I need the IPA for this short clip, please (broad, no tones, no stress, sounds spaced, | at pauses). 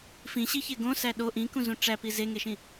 f ĩ ɕ i ç e ɡ õ s æ ɗ o ʔ ĩ k ũ z ũ ʈ͡ʂ æ p i z e ŋ e ʃ ĩ